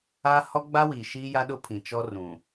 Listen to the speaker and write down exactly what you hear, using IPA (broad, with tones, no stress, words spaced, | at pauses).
a˦hɔ˦ɡ͡ba˦wi˨ ʃiː˦ja˦ɗʊ˦pʰĩ˨ t͡ʃɔ˦rũ˨